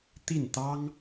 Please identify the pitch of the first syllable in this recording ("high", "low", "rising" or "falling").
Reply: falling